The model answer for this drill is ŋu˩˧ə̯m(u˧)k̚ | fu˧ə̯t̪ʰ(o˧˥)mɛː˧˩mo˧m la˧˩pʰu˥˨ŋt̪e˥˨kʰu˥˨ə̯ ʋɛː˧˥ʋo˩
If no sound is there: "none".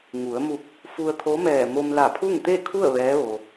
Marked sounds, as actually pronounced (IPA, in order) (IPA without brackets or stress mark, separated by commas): u˧˩, o˧˥